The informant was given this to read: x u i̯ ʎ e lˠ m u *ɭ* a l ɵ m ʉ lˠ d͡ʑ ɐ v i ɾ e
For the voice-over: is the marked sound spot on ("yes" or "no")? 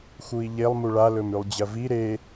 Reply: yes